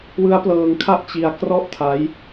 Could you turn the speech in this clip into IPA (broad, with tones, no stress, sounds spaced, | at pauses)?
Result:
w ɯ˦˥ a̯ p l ɤː˧ ŋ kʰ a˥˩ ʔ t͡ɕ i˧ a̯ k r ɔ˥˩ ʔ tʰ a˦˥ j